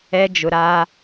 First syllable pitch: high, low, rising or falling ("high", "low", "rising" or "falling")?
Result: high